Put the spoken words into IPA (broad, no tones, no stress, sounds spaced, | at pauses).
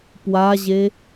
p w a ʑ e